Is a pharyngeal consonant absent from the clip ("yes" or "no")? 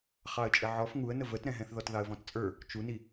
no